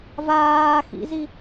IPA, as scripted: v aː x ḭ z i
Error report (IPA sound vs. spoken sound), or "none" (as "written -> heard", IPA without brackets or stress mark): none